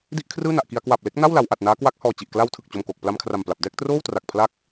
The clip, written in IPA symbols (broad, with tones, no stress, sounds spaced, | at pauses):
d i˥˩ ʔ kʰ r ɯː˥˩ n a˨˩ ʔ k i˧ a̯ k w a˨˩ p̚ l e˦˥ k̚ n a˥˩ w l a˩˦ w ʔ a˨˩ t̚ n aː˦˥ k w a˦˥ k̚ h ɔː˨˩ t͡ɕ i˨˩ ʔ k l a˧ w tʰ ɯ˨˩ k̚ t͡ɕ o˨˩ m k oː˨˩ k̚ p l a˧ m kʰ r a˨˩ m p l a˨˩ p̚ d ɛː˥˩ k̚ t r oː˥˩ w t r a˨˩ k̚ pʰ l a˥˩ k̚